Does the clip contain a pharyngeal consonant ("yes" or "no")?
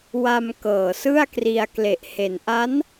no